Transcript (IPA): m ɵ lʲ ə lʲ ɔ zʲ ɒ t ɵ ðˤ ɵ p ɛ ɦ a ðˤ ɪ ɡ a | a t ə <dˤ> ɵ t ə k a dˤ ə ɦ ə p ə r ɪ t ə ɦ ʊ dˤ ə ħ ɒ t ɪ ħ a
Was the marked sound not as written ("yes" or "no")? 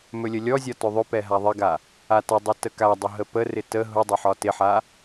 no